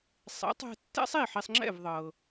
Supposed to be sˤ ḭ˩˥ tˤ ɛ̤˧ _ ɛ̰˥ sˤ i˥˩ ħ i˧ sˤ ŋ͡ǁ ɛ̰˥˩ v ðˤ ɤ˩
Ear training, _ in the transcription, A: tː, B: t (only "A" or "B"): A